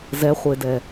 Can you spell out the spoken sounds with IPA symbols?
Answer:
z ɛ χʷ e d ɛ

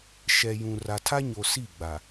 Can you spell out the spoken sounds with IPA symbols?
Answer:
ʃ ɛ˨ j ũ˨ r a˨ tʰ a˦ ɲ o˨ s i˦˨ ɡ͡b a˨

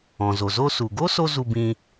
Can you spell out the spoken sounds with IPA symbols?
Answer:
ɔ̃˩ z o˩ z o˧ s u˩ ɡ o˥ s o˥ z u˧ b ĩː˧

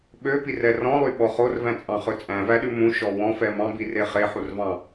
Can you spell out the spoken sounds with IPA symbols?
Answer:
ɓ ø p i r ɛ r ɔ̃ lˠ y ɓ ɔ χ o r v æ̃ t͡sʼ ɑ̃ χ ɵ t͡sʼ æ̃ v æ ɗ ʉ m ũ ʃ ɔ w ɔ̃ f ɛ m ɑ̃ b i r e χ e ħ u r v ɑ̃

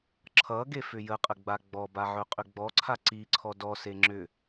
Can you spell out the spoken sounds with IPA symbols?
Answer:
ǁʰ ʌ ɡ e f ʏ j ə qʼ ə ɡ͡b a ɡ͡b ɔ b a ʕ ɵ qʼ ʏ ɡ͡b ɔ ǀʰ a ǀ i ǀʰ ɔ d ɔ s e ŋ͡ǁ ʏ

